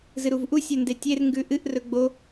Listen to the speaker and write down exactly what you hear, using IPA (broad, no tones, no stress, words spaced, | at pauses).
zɨɾuvʔu sʲɵndetʲer ŋɡʉʔɨʔ rɵɡ͡bo